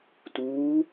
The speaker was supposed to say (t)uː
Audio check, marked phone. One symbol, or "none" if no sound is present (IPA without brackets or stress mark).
t